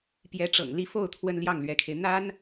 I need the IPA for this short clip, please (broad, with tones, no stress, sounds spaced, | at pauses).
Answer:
p j ɛ˧˥ ʈ͡ʂ ɤ̰˨˩ ŋ l i˧˥ f o˥˩ ʊ̯ t̪ʰ w ə˥ n l j ɑ˥˩ ŋ l ɥ ɛ˧˥ kʰ e˧ ɪ̯ n̪ a˥ n